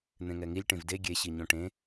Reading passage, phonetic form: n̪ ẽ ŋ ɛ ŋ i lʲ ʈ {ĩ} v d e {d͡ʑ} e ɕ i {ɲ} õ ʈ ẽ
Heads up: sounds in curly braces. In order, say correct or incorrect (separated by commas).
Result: incorrect, incorrect, correct